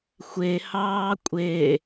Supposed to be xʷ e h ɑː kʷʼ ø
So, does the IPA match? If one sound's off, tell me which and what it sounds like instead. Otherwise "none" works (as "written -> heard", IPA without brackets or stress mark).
ø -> e